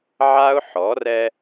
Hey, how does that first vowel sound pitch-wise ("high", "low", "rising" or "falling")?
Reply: high